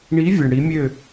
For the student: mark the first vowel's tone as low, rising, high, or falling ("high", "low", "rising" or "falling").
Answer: rising